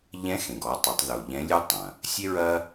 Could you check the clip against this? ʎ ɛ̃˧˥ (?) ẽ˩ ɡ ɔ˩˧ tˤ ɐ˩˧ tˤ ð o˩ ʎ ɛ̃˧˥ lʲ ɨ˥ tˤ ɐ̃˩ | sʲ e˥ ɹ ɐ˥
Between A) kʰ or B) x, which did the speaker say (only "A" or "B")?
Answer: B